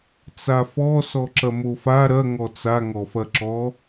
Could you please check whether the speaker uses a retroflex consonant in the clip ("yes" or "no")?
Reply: no